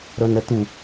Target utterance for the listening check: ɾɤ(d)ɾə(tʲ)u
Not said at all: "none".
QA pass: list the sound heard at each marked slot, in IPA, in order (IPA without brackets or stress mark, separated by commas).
n, t̪